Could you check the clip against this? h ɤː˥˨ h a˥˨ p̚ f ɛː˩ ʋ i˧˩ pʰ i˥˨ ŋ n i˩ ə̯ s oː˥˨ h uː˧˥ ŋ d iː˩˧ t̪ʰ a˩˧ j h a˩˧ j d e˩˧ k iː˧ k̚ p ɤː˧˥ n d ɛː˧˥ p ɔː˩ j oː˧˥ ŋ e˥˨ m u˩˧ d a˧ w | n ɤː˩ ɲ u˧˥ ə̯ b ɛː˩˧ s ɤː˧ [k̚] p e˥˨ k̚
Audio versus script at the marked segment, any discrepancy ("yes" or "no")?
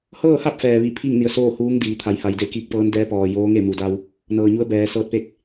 yes